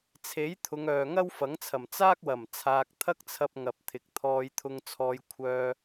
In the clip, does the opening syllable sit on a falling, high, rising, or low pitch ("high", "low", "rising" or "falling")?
rising